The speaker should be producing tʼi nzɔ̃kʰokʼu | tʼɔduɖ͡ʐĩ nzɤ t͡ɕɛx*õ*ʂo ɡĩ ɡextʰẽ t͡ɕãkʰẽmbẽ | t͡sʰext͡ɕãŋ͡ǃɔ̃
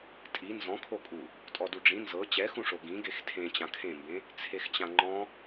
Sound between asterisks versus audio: incorrect: ũ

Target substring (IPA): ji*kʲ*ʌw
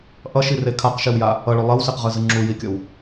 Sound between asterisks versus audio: correct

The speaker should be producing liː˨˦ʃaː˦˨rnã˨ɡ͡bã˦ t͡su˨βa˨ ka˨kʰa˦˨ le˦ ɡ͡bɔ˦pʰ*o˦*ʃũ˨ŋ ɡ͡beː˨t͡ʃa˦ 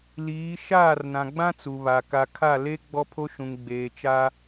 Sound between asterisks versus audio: correct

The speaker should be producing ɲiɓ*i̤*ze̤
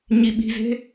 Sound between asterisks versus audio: correct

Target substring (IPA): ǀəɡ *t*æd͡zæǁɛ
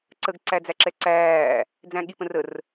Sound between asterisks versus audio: incorrect: ǀ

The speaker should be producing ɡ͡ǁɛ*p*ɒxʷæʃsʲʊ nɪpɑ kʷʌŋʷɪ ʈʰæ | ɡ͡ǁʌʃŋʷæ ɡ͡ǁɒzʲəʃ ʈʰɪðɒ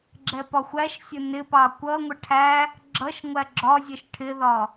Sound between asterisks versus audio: correct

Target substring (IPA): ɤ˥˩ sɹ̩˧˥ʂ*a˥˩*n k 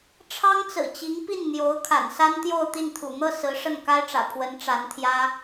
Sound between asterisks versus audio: incorrect: ə˥˩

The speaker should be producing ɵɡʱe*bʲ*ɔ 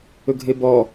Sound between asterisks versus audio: incorrect: b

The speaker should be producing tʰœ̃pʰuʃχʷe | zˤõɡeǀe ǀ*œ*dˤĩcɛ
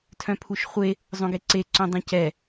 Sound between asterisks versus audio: incorrect: œ̃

